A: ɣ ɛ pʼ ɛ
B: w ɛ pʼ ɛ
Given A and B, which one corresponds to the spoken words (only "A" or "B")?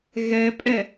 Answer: A